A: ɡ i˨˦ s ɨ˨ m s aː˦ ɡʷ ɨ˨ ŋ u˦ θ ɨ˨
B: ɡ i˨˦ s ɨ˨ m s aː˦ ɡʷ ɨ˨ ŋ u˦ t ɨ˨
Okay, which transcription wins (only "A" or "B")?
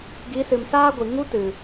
B